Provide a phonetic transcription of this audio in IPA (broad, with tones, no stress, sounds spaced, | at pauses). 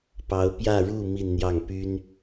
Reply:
p ɑ˧˥ ʊ̯ p j ä˥˧ ɻ u˥˧ m i˥˧ n n̪ j ɑ˥˩ ŋ p y˥ n